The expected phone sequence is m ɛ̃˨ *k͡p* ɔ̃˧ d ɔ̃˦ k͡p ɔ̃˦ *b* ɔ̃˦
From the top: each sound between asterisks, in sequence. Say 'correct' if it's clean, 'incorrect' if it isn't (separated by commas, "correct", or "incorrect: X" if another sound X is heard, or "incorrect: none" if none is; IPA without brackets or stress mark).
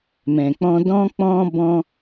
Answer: correct, correct